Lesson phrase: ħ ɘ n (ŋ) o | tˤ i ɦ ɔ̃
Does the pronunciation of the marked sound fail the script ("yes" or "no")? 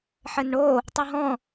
yes